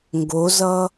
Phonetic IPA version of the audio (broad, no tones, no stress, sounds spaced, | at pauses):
ŋ ɡ o z ʌ